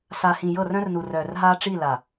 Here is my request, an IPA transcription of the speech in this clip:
s a˨ h ĩ˨ j ɤ˦˨ r œ̃˦ r n u˨ r œː˨ r ɦ aː˦ ʈ͡ʂ i˦˨ l a˨

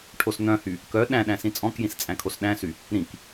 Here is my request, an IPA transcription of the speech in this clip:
ʈʰ o s n̪ œ̃ h y | k œ ɗ æ̃ ɗ æ̃ s ĩ t͡sʼ ɔ̃ k j ĩ s t͡sʼ æ̃ kʰ o s ɗ æ̃ s y | ɾ ĩ k

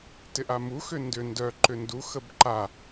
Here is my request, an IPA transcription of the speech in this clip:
t ɪ ʔ a m u x ʏ n d ʏ n d œ ǃ ʏ n d u x ə b ǃ a

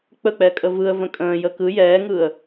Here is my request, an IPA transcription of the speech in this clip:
k͡p ə k͡p ɛ kʼ ə v ɯ ə̯ v ə̃ kʼ ə̃ː j ə k ɯ j ɛː ŋ ɯː ə̯

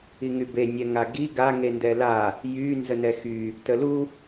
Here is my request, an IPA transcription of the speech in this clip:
i ŋ y b e nʲ ɛ ŋ a ɡ i ɡ a ŋ e n d ɛ l a | j y n z ə n ɛ x y | t ə l u

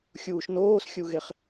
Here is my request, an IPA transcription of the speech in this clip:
xʲ uː ʃ n oː s xʲ u ɣ e χ

